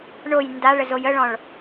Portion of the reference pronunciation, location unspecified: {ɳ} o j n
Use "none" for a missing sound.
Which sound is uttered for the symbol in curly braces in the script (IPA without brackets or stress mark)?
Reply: ɳ